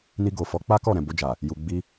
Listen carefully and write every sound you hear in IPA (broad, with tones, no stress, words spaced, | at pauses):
ni˧ɡo˨fɔ˨˦ k͡pa˦kɔ˦˨ɾɛ̃˨ bo˧d͡ʒa˨ | ju˨ɡ͡bi˧